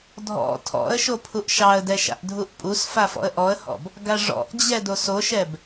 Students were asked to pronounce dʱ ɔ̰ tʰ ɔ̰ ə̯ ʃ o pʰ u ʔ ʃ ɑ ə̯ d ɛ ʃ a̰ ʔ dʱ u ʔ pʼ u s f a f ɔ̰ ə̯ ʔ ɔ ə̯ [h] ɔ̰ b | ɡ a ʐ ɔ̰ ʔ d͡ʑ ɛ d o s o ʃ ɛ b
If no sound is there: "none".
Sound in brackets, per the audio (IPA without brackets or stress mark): h